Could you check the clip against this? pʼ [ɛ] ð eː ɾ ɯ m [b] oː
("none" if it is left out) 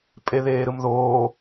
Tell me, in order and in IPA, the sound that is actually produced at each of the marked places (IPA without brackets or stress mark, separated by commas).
e, ð